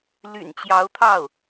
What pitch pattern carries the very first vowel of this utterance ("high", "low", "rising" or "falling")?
low